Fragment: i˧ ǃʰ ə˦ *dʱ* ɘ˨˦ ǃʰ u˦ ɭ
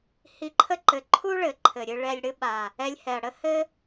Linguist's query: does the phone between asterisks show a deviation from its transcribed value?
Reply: yes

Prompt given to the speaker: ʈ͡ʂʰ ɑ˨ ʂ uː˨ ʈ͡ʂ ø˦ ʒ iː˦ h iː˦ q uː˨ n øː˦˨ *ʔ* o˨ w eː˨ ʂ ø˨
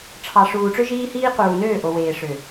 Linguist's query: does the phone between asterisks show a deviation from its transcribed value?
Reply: no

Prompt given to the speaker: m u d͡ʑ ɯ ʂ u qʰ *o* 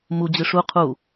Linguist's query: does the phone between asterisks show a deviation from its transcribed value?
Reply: yes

